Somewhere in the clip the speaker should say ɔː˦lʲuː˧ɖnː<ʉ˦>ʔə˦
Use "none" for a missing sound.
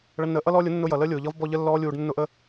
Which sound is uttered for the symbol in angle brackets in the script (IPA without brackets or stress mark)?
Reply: ʊ˦